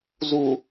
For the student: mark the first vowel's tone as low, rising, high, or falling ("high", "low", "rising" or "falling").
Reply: low